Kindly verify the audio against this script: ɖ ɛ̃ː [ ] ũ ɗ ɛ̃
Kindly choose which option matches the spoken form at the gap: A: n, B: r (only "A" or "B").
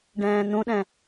A